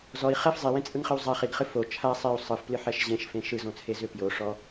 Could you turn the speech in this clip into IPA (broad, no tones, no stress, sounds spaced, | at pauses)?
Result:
z ɔ i̯ χ ɛ f zˤ e w ẽ t͡sʼ ɯ ŋ χ ɨ w zˤ a χ i ɡ χ ɨ f o t͡ʃʰ a sˤ e u̯ sˤ ɯ f p l ɨ ħ ɛ ʃ ʑ ẽ ʃ f ẽ ʃ ɯ z õ t͡sʰ e z ʏ p j o ʂ ɔ